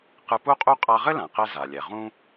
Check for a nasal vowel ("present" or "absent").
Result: present